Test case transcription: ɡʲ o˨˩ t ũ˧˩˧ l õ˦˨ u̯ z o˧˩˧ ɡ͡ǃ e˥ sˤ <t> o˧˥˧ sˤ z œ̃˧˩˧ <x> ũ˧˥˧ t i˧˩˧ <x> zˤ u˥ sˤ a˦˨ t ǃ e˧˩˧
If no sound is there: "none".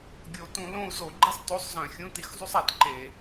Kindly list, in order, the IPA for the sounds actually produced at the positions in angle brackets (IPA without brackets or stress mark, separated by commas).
t, xʲ, x